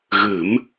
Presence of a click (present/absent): absent